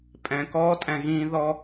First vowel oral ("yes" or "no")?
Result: no